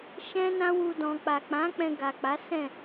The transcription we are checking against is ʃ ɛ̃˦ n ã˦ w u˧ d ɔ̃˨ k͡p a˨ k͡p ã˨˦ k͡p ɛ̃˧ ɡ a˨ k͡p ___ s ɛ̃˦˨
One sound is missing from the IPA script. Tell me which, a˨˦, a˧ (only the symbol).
a˨˦